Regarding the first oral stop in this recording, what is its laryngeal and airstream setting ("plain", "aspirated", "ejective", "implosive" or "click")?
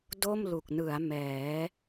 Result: plain